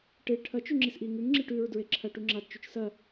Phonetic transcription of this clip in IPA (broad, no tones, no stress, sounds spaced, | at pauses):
ʈ e ʈʰ ɐ t͡ʃ ʉ ŋ͡ǁ i s ʔ i ŋ ʉ ŋ ŋ͡ǁ i ʈ ʉ ɹ d ɹ e ǁʰ ɐ ʈ u ŋ͡ǁ a d t͡ʃ ʉ t͡ʃ s ɐ